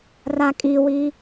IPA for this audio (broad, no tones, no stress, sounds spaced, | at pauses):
r a kʼ i w i